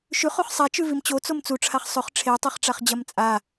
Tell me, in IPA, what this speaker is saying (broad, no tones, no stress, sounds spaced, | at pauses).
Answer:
ʃ ʉ χ o χ sˤ a t͡ʃ ʉ v i m t͡ɕ o t͡s o m t͡s u ʈ͡ʂʰ a χ sˤ ɵ χ ʈ͡ʂʰ e tˤ e χ ʈ͡ʂ a χ d͡ʑ ɐ m t͡sʼ a